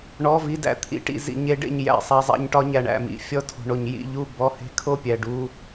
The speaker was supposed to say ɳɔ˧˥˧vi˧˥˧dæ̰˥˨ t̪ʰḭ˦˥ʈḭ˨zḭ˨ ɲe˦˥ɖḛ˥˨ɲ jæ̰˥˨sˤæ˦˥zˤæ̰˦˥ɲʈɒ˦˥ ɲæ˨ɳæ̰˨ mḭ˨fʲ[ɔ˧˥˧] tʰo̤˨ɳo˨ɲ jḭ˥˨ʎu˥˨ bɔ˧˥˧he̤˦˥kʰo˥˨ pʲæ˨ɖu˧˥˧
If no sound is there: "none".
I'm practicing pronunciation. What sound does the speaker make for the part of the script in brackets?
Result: ɔ˥˨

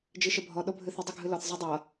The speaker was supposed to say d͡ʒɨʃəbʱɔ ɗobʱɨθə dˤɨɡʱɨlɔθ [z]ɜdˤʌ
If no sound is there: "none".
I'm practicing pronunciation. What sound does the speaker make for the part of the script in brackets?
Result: zˤ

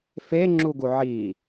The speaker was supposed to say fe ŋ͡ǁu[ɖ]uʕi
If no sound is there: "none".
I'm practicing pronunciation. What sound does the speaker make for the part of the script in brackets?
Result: ɡ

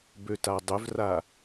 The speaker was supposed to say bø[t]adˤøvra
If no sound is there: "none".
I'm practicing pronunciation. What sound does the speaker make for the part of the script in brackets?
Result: t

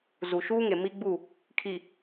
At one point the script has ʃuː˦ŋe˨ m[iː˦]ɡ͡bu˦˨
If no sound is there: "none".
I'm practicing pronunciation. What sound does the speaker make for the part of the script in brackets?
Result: i˦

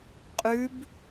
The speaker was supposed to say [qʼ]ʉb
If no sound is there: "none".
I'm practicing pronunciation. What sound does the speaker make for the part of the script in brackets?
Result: qʼ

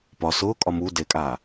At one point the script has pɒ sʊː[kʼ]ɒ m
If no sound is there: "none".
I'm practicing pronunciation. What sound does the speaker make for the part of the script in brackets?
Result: kʼ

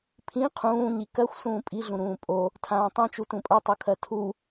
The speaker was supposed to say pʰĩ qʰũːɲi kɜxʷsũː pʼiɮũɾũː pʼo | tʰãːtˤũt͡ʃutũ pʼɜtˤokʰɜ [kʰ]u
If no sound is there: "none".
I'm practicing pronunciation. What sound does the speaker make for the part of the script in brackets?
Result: tʰ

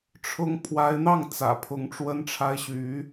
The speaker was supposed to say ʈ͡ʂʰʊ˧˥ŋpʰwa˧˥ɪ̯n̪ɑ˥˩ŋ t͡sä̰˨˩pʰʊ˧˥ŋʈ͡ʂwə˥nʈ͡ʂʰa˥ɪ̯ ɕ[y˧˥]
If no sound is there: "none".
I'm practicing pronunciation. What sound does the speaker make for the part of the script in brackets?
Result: y˧˥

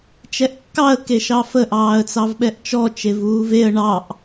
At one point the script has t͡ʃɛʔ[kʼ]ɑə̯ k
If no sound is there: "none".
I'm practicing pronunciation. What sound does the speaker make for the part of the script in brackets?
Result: kː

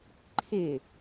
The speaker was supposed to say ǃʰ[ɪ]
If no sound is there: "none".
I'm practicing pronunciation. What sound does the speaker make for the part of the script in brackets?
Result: ɪ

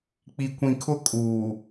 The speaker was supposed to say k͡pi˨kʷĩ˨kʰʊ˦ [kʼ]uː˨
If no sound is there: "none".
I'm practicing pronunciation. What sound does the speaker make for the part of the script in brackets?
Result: kʼ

